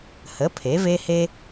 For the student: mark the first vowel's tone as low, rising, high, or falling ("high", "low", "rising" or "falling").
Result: rising